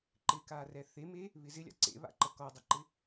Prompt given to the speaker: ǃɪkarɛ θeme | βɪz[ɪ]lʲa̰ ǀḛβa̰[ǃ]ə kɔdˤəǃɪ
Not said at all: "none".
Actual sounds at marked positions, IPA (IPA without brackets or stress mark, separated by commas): ɪ, ǃ